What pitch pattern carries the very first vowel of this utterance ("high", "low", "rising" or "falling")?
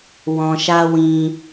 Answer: low